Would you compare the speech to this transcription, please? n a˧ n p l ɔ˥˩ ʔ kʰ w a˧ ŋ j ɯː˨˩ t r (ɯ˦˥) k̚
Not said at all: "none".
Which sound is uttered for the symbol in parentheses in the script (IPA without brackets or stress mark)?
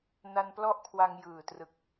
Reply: ɯ˨˩